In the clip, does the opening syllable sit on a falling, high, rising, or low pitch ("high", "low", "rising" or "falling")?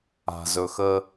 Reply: low